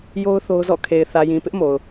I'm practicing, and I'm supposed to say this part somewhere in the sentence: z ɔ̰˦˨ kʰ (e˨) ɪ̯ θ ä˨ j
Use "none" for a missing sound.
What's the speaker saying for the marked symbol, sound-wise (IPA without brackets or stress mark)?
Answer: e˨